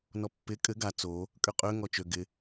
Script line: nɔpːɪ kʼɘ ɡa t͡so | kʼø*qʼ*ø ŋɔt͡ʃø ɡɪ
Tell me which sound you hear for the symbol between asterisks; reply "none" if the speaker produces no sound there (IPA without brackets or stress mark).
qʼ